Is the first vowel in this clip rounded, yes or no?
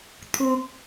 yes